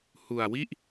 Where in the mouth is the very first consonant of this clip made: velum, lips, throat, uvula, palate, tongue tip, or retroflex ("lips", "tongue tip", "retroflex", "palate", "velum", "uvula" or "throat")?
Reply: throat